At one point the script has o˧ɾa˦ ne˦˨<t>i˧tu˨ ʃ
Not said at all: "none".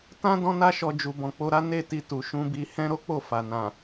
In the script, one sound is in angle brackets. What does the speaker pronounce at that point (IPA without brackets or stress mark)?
t